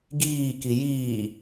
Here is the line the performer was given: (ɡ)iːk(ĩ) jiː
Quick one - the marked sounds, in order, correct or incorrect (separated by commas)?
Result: correct, incorrect